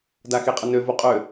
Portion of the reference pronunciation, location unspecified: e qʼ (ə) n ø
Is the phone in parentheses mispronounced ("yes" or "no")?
no